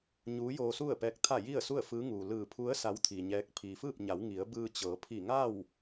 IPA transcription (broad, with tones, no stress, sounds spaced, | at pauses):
ɲ uː˧˥ j oː˧ s u˥˨ ə̯ p ɛː˧˥ k̚ t̪ʰ a˥˨ j i˥˨ ə̯ s u˥˨ ə̯ f ɯː˧˥ ŋ uː˩ l ɯː˧˩ pʰ u˧˥ ə̯ s a˧˥ w t̪ʰ i˩ ɲ ɛː˧˥ k̚ pʰ iː˩ f ɯː˥˨ p̚ ɲ a˩˧ w ŋ i˩˧ ə̯ b ɯː˧ t͡ɕ ɤː˩˧ pʰ i˧˩ ŋ a˥˨ w